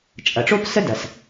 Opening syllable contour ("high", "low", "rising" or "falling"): low